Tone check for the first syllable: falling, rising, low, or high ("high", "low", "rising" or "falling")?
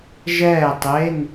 falling